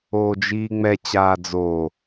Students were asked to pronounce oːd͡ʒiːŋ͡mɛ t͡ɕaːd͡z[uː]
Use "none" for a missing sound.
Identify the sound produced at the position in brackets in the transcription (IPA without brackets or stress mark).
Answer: oː